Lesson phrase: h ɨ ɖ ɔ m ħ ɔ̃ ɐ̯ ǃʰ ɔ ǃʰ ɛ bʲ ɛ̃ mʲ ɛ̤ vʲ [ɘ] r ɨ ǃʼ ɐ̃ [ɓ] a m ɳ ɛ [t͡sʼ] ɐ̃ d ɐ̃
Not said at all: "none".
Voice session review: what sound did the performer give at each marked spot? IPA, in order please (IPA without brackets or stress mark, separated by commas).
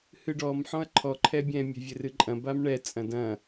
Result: ɘ, b, t͡sʼ